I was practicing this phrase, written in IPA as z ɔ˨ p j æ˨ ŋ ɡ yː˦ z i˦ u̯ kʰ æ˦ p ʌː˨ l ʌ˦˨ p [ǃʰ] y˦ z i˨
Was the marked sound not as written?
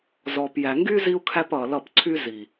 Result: yes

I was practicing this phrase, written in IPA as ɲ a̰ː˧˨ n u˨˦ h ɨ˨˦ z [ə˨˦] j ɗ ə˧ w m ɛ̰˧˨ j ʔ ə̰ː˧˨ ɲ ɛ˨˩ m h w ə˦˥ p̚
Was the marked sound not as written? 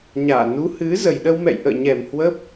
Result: yes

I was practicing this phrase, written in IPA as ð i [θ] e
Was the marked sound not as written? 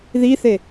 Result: no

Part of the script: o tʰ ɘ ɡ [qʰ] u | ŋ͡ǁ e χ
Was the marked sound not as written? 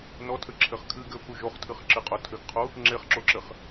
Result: no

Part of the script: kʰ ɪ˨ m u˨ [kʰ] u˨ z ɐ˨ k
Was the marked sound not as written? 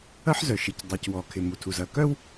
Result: yes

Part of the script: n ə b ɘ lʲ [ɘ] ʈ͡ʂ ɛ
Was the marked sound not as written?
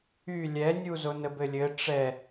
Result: no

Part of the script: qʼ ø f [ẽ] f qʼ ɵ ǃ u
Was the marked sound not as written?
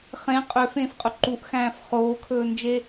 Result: yes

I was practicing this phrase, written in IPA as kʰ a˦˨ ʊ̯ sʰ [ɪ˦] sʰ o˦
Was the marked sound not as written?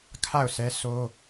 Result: yes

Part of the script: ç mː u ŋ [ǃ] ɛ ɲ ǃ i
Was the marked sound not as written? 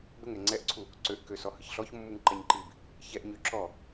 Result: no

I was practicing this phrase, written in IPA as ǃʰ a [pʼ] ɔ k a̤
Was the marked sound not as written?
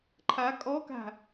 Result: yes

